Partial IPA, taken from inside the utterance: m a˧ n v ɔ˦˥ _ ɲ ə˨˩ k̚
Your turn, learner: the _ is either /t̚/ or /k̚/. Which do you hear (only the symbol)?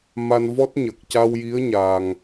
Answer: t̚